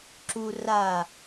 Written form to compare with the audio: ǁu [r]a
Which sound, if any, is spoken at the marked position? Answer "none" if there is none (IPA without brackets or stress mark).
r